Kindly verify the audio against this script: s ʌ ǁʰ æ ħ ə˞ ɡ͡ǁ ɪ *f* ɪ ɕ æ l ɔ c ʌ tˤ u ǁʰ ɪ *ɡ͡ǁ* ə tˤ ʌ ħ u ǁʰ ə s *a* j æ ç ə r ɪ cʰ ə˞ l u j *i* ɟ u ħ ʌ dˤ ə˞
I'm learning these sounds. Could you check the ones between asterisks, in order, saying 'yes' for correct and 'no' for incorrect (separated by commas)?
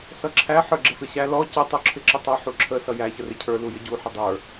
yes, no, no, no